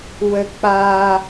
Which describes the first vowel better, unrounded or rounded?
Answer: unrounded